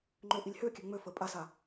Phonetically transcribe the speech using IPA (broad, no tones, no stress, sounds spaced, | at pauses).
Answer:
ŋ͡ǃ ø ʔ i lʲ h ø kʲ ø ŋ͡m ø f ə pʼ a s a